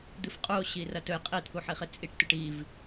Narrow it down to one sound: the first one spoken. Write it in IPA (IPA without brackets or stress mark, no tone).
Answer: d̪